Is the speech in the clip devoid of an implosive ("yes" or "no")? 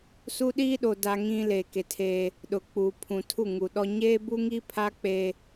no